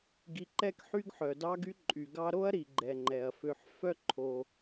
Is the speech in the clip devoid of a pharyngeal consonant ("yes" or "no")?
no